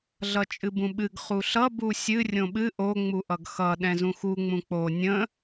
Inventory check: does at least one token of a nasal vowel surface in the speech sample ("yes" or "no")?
yes